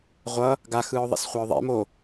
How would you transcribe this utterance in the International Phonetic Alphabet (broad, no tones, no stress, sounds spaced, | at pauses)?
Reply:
ʁʷ ʌ | ɡ a x ɯː ʊ̯ ðˤ ɛ̰ s χʷ a ʊ̯ ðˤ ḛ m o